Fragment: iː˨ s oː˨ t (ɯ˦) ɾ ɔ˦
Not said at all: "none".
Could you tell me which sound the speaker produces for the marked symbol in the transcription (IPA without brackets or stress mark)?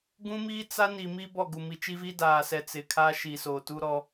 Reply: u˦